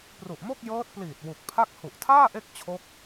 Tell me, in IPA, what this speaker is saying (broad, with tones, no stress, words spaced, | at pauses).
pru˨˩ʔmo˥˩k̚ jɤː˦˥t̚pliː˨˩t̚ wu˨˩k̚pʰa˥˩k̚ hu˨˩ʔtʰaː˥˩ ʔe˥˩k̚t͡ɕʰo˦˥k̚